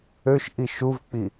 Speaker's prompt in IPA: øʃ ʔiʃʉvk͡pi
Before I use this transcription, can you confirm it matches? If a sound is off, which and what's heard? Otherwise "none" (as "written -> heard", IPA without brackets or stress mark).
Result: ʉ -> u